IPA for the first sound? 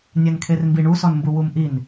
nʲ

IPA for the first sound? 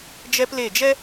d͡ʒ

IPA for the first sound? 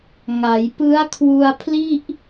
ŋ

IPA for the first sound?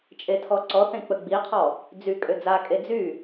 t͡ʃʼ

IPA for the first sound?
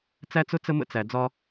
t͡s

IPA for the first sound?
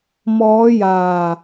m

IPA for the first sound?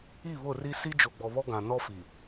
i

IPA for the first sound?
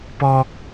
p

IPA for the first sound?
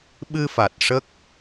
ɓ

